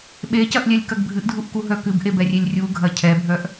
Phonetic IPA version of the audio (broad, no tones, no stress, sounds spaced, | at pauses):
ɓ e c ɐ ʔ lʲ ɛ lʲ k ɐ ɡ bʱ ɨ ʔ dʱ u ʔ k u ɦ œ k ɨ b ʔ e b ɛ rʲ e lʲ rʲ u ɡʱ ɐ cʰ ɛ bʱ œ ʔ